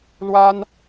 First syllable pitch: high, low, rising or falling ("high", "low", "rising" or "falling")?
high